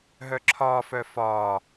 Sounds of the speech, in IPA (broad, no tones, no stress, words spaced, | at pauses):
ɦœǁʰɒːfœ fɒː